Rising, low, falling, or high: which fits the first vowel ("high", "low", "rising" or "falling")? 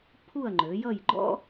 falling